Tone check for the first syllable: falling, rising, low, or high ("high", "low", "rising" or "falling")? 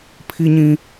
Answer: high